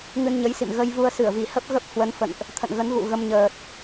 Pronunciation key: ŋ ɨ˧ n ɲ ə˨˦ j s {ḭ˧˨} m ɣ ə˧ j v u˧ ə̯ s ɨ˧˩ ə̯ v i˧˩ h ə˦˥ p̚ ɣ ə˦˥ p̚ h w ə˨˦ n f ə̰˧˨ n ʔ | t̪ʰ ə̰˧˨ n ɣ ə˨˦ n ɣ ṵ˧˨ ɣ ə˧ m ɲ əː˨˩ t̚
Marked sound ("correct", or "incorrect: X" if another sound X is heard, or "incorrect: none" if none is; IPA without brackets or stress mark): correct